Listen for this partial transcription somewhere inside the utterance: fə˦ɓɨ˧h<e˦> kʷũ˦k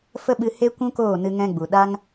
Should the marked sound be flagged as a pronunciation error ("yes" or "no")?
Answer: no